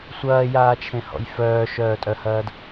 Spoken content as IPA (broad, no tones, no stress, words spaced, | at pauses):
sʷɐːjaːt͡ʃʰẽhɔ̰j fœːʃœːtʼœhɐːd